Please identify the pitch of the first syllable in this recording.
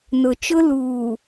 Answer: low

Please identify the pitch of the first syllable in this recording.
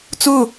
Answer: falling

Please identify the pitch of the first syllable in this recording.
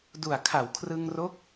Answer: low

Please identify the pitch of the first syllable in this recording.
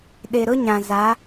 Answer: low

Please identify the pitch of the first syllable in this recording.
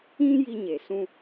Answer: high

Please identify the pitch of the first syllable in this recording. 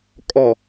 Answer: low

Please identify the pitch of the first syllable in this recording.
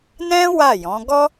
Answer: high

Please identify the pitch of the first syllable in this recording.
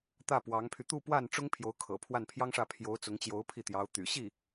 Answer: falling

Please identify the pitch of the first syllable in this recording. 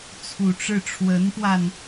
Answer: low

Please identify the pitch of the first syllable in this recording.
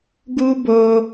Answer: high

